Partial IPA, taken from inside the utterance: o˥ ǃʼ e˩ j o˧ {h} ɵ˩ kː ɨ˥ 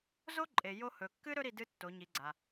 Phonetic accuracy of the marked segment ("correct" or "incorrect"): correct